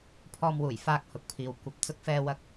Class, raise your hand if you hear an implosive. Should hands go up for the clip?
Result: no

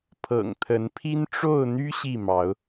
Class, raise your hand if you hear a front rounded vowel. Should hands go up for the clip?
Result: yes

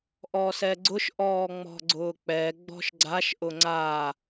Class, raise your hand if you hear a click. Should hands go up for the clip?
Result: yes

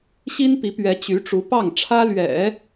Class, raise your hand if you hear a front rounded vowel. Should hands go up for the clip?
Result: yes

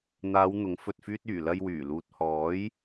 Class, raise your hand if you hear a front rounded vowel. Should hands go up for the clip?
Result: yes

